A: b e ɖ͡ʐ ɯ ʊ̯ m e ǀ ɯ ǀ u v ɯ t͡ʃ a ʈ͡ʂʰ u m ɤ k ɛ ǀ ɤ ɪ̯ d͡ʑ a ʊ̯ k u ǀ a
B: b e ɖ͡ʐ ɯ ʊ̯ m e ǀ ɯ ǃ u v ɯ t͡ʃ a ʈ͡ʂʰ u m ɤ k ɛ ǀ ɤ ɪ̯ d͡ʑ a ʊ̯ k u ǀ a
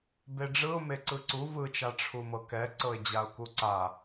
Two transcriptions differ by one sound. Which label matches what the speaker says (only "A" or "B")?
A